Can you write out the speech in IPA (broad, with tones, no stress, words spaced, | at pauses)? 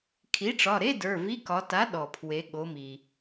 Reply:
kʰi˩˥ʈ͡ʂɒ˩˧˩ɾe˧˥˧ də˞˩˧˩vi˧˥˧ kɒ˩˧ta˩˥ ɗɔ˩pʰwe˩˧ɠo˩˧mi˩